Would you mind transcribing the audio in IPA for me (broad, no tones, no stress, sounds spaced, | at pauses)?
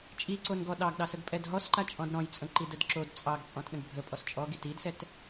t͡ʃʼ i ǀ o n ɡ ɔ ɗ ɑ ɡ ɗ ɑ s ə ɡ pʼ ɛ d ɦ ɔ s ǃ a t͡ʃʼ ɔ̃ d ɾ ɔ̃ j t͡sʼ ə̃ ǃ i d ə d ǁ o d t͡sʼ ɑ ɡ t͡sʼ ɔ̃ t ɗ ə̃ ɡ bʱ ə pʼ ɔ s t͡ʃʼ ɔ ɡ i t i d s ɛ t